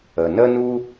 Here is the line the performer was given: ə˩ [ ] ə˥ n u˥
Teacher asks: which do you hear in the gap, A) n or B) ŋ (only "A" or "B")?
A